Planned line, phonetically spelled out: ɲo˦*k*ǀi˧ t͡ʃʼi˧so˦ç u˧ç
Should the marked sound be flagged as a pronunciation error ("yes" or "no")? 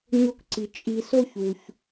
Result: no